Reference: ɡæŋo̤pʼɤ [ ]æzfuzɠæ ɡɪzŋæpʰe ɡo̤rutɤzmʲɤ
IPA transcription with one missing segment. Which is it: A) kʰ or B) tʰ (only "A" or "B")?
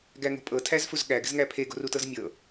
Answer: B